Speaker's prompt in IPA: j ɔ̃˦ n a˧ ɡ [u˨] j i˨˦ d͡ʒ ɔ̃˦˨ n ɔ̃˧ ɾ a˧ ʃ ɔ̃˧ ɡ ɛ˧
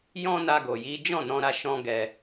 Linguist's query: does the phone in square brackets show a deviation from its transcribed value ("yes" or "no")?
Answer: yes